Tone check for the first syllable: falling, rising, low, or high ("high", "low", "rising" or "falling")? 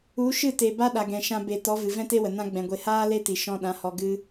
rising